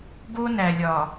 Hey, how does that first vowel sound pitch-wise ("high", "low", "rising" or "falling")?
high